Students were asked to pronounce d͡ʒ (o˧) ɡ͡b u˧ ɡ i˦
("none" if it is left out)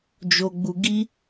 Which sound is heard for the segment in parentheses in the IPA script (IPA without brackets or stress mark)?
o˧